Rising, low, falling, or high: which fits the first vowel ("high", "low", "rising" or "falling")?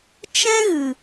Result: high